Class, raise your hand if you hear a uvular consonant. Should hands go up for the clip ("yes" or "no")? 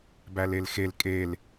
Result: no